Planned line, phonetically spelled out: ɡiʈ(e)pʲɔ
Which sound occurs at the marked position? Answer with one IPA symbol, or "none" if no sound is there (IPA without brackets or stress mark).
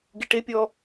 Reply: e